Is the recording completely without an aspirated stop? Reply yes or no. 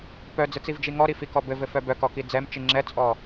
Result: yes